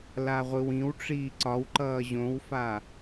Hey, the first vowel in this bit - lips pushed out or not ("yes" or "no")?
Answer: no